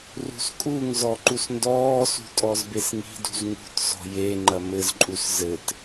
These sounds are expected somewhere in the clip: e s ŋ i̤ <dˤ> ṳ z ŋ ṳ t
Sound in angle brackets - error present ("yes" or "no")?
yes